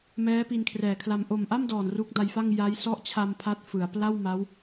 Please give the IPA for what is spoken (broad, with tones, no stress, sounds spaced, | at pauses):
m ɛː˦˥ p i˧ n kʰ r ɛː˨˩ kʰ l a˧ m ʔ o˨˩ m ʔ a˥˩ m d ɔː˨˩ n r u˦˥ k̚ d a˧ j f a˥˩ ŋ j a˦˥ j s ɔ˦˥ ʔ t͡ɕʰ a˧ m pʰ a˦˥ t̚ f ɯ˩˦ a̯ p l a˥˩ w m a˦˥ w